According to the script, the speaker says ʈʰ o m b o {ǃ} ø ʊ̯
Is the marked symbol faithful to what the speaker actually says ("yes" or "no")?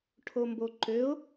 yes